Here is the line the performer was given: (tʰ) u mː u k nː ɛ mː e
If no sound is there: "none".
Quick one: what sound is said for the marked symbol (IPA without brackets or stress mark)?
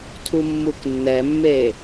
tʰ